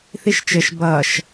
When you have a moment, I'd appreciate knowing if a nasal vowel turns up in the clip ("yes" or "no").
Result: no